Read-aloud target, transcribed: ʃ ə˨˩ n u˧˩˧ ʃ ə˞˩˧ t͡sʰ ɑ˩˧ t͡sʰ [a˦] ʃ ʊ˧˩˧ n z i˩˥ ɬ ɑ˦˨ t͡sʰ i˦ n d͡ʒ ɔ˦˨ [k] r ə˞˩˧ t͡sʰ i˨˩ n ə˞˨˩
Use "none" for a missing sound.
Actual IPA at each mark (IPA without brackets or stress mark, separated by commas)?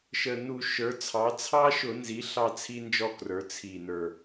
ɑ˦, k